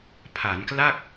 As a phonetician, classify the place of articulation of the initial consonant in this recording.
labial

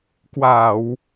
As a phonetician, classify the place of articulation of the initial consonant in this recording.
velar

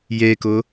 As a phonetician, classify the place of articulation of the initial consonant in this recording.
palatal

